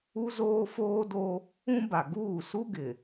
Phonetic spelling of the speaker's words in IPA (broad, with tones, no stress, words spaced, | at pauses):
u˦zoː˦foː˦do˦ | ũ˦ba˨ ɡuː˦˨su˦ ɡɪ˨